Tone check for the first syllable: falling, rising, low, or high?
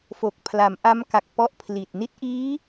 low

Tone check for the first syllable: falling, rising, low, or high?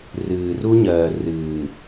low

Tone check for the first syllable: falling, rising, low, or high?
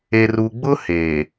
low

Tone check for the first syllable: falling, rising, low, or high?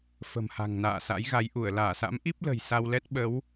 low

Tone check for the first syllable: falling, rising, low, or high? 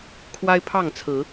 high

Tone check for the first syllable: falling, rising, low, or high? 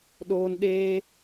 high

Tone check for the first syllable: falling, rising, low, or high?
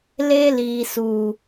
high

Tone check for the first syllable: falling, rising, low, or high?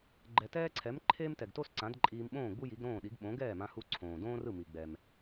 low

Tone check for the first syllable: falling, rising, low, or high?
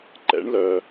rising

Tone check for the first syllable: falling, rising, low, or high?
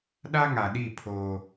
high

